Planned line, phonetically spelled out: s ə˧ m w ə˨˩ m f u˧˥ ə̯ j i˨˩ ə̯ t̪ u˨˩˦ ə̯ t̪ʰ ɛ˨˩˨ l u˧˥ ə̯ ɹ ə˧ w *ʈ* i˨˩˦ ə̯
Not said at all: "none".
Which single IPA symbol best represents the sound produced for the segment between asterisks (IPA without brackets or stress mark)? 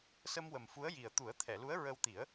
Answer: t̪